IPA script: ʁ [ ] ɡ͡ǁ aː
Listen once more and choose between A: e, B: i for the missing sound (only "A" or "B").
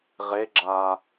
A